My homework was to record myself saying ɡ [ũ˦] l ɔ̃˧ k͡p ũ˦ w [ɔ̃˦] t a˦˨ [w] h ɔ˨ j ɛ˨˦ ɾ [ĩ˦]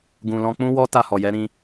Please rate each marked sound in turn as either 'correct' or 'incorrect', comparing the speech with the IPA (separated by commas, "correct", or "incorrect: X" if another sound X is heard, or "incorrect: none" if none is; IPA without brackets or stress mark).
incorrect: ũ˧, incorrect: ɔ˦, incorrect: none, incorrect: ĩ˧